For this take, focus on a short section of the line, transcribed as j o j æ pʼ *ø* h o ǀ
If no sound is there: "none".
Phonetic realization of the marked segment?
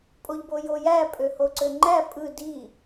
ø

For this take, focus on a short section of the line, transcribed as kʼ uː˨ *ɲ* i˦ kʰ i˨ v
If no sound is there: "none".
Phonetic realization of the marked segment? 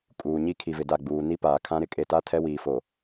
ɲ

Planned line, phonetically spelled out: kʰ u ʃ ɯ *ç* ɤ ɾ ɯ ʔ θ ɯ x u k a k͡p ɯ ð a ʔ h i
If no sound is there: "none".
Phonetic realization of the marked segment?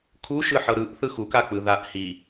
ħ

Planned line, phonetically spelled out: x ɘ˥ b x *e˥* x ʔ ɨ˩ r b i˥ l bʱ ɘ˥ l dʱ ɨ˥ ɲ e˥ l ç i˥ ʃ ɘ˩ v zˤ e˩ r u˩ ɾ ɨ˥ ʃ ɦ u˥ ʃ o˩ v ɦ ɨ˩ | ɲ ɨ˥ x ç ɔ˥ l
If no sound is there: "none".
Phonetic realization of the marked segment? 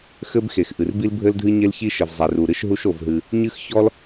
e˩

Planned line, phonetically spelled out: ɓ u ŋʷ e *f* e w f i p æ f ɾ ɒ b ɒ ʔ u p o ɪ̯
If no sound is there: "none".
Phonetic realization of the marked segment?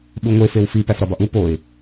f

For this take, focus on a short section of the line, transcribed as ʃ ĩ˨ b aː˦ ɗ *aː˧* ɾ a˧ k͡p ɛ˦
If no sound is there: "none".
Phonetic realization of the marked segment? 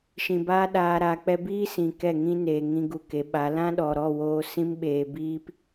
aː˧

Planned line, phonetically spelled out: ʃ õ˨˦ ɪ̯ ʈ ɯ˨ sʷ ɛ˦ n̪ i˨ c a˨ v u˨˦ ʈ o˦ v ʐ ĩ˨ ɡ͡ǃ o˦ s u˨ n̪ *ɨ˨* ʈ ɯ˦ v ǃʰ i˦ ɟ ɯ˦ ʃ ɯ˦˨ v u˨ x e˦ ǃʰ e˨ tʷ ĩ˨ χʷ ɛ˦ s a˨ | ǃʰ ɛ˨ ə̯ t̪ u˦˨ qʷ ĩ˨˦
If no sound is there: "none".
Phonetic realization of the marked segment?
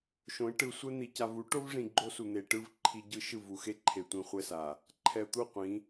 e˨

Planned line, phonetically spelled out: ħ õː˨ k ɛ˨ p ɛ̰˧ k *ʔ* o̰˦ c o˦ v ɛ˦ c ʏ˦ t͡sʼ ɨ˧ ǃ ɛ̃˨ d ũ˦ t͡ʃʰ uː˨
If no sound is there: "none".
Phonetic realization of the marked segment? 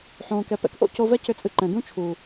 ʔ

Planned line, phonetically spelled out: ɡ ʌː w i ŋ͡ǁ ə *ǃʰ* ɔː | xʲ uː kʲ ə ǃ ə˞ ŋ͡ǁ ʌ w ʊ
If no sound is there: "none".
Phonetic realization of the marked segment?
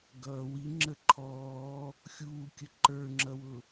ǃʰ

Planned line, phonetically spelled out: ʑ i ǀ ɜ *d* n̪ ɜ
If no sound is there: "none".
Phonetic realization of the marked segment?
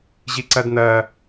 d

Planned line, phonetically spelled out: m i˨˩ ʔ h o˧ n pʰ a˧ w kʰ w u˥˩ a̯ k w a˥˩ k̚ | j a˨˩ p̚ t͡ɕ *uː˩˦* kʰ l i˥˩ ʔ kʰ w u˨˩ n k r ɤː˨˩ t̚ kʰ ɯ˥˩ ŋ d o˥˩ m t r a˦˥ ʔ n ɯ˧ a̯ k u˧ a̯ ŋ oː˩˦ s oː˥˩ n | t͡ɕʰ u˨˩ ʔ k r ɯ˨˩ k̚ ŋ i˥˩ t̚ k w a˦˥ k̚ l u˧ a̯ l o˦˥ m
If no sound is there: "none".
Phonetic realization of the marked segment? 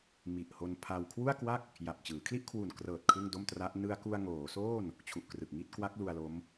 ɯː˩˦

